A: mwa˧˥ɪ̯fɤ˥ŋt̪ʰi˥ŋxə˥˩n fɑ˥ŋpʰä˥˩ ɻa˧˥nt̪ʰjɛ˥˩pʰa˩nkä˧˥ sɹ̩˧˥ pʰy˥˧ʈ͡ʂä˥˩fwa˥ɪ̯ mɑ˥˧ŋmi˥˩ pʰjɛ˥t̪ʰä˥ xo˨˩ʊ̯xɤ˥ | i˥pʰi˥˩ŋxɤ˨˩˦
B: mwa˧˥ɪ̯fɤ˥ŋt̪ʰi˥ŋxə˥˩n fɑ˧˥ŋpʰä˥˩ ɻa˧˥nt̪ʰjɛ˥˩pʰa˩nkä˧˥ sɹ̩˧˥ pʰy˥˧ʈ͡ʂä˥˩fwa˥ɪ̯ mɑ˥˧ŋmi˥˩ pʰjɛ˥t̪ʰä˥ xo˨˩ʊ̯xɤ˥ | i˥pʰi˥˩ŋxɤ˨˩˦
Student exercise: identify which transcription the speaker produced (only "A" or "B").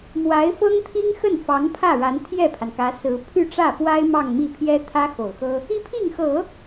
B